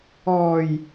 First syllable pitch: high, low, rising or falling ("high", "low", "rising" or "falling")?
low